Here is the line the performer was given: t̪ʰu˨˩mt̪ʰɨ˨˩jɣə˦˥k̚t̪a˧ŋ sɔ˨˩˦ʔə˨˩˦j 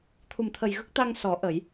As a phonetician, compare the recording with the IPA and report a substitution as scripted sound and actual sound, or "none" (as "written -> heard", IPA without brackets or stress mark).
ɨ˨˩ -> ə˨˩